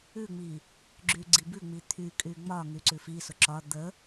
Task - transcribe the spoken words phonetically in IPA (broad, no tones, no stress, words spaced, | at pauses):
ʉŋ͡mi | ɡ͡ǁyɡ͡ǀibʉŋ͡mi t̪ʰykʼy ŋ͡mɒ ŋyǀʉfisʊ ǁɒ d̪ə